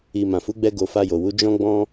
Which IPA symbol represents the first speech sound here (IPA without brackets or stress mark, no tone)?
i